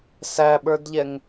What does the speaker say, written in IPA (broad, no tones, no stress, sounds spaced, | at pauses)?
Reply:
s æ ɓ ə˞ d ʎ ɛ ŋ